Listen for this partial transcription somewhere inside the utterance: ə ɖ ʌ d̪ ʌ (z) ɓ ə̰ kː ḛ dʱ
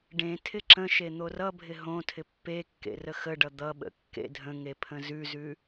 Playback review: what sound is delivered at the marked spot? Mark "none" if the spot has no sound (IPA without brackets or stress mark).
none